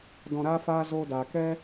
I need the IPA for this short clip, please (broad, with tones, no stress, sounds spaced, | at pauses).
d ɔ̃˨ ɾ aː˧ f aː˧ z oː˧ d aː˨ k ɛ˦